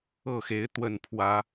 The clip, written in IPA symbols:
ɤ˥˨xe˨˦ɪ̯ t̪wə˥˨npʰwä˨˦

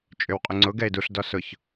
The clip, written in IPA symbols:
t͡ʃʼʏwqʼʏŋ͡ǀʊ ɡɛɪ̯duɬ dɔsʊç

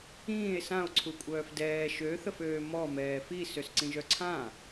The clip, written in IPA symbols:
ĩːe̯ são̯ǀʰukʷʼœːf dɛː ʃøθəføː mɔ mɛːfi søsǀĩʒœǀʰã

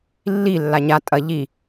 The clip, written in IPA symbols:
lːi lːaɲa tʼɐ ʎi

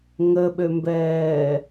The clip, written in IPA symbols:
ŋəɓømbɛː

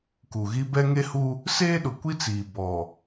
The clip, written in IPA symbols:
ku˨ɣi˦ bɛ˦ ŋe˦hu˦ | seː˦ɗʊ˨kʷi˦t͡siː˨ bɔ˨

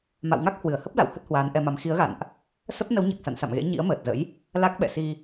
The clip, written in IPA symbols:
ma̰˧˨wŋa˦˥k̚ hwɨ˧˩ə̯hə˦˥p̚la̰˧˨w hə˦˥t̚hwaː˨˦nʔɛ˧ma˨˦m xi˨˦ə̯ɣa̰˧˨nʔ | sə˦˥p̚ nə˨˦wɲa˨˩k̚sa̰˧˨n sa̰˧˨mɣḛ˧˥ ɲḭ˧˥ə̯məː˨˩t̚zə̰˧˥j | la˦˥k̚ɓɛ̰˧˨si˧

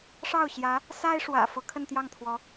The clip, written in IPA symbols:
ʂɑ˥˩ʊ̯ɕjä˧˥ | sa˥ɪ̯ʂwä̰˨˩ fɤ˧˥kʰə˥˧nt̪jɑ˥˩ŋt̪ʰwɔ˧˥

